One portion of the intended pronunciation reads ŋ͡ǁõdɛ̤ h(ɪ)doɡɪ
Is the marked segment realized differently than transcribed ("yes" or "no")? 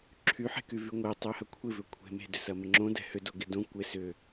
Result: yes